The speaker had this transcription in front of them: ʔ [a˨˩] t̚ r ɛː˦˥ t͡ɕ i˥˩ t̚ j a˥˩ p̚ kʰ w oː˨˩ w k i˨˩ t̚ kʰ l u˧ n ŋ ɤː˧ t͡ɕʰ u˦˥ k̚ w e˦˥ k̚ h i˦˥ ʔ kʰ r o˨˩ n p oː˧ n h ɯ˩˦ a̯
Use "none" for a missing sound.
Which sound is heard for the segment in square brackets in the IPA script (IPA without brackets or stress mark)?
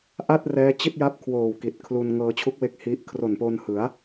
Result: a˥˩